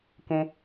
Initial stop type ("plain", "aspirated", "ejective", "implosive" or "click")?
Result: plain